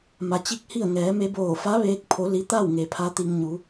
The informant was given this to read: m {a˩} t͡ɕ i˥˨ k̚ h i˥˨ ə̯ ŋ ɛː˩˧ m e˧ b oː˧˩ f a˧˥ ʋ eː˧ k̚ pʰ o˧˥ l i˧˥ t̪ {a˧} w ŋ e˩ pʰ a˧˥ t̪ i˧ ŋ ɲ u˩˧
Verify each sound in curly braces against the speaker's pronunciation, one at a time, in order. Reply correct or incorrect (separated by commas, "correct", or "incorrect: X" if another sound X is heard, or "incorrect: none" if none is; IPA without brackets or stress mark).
correct, incorrect: a˥˨